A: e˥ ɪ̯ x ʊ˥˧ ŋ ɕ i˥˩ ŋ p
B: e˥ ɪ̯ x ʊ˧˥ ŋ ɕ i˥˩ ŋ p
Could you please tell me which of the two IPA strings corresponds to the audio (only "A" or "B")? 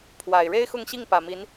A